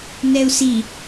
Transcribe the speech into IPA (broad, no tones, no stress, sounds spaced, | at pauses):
n ɛ u̯ s i